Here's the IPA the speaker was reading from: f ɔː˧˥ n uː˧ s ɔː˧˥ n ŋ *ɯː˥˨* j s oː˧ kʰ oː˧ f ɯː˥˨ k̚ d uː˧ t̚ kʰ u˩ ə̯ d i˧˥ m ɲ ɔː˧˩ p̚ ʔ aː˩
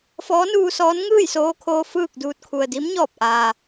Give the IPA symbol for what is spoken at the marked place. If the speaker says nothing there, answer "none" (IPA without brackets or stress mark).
ɯː˥˨